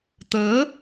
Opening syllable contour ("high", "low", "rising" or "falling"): rising